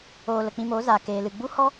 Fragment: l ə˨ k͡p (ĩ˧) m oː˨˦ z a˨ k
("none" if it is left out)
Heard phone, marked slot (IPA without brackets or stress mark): ĩ˧